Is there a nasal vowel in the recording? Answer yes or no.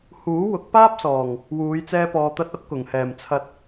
no